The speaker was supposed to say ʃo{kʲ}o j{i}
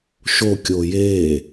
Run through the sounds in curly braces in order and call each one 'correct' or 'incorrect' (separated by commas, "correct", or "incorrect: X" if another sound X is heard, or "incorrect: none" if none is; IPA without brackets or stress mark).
correct, incorrect: e